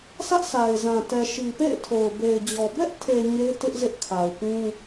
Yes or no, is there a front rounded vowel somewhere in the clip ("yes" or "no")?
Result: no